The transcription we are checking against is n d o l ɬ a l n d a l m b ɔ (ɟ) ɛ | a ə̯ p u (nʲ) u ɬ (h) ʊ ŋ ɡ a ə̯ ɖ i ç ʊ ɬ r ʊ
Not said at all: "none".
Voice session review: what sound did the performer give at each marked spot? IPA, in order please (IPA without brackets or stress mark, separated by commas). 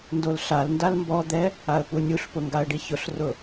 d̪, nʲ, p